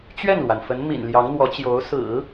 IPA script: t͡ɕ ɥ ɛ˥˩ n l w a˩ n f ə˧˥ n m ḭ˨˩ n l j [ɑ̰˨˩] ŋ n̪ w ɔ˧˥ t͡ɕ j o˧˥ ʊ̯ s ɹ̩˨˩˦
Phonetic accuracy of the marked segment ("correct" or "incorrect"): incorrect